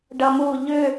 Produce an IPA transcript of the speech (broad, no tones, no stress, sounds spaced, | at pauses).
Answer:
ɖ ʌ m u ʎ ʏ